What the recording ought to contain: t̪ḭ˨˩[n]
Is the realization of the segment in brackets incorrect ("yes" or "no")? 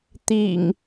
yes